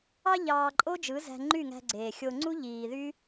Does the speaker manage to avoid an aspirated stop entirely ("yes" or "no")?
yes